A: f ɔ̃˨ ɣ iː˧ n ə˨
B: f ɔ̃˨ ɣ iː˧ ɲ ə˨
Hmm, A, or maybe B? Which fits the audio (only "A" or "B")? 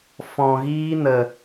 A